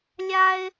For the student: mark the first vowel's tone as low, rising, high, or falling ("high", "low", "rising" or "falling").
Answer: high